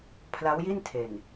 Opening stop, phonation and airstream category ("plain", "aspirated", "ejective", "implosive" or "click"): aspirated